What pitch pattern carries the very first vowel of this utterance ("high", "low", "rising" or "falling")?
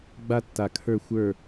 high